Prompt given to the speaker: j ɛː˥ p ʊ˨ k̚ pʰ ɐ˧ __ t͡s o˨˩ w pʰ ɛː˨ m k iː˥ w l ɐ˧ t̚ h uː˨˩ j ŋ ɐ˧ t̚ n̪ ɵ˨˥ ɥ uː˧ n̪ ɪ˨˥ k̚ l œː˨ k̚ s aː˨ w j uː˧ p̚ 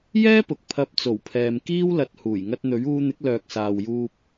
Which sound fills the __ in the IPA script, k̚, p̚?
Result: p̚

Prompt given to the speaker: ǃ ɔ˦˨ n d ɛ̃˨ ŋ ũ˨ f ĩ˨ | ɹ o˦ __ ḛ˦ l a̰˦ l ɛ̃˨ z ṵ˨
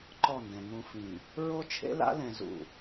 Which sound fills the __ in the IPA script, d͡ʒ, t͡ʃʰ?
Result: t͡ʃʰ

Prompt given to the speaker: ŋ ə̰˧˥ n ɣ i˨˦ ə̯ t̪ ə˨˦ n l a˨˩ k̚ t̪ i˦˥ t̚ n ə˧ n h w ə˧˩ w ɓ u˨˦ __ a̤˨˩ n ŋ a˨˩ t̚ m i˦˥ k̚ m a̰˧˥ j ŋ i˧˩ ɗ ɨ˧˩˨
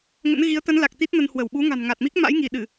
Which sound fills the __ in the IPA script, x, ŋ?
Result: ŋ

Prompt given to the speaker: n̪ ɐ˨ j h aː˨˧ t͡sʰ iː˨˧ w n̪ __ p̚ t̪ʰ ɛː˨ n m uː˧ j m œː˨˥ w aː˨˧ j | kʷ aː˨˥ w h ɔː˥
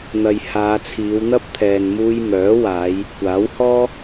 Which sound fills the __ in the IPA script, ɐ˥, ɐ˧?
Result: ɐ˥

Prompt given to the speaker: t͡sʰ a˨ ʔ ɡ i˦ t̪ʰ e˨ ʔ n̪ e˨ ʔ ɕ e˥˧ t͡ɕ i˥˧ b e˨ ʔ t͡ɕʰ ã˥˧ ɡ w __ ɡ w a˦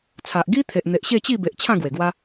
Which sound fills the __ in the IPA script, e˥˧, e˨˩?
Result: e˨˩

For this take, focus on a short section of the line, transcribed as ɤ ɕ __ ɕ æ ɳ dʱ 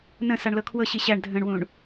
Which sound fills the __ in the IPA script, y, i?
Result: i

